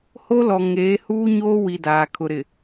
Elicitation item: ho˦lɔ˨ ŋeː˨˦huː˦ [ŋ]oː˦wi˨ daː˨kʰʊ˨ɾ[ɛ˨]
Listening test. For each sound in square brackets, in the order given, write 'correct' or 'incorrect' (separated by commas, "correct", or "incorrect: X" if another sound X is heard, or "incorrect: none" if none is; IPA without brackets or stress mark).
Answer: incorrect: ɲ, incorrect: ɪ˨